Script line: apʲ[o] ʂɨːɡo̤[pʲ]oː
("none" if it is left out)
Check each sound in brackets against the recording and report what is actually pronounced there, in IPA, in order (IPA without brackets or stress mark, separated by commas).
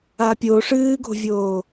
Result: o, vʲ